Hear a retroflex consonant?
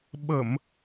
no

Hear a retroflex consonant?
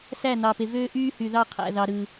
no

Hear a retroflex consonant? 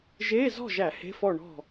yes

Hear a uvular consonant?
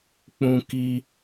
no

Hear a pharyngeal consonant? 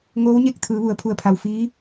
no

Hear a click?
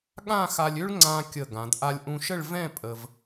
yes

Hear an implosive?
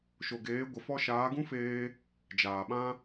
yes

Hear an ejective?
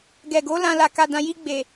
no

